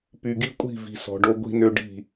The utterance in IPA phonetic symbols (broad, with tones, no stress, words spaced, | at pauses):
py˨ɡi˦kʷʼi̤˦˨vi̤˨ sɔ̤˨ɖo˦ɡʷi̤˦nø˦ ɖi̤˦˨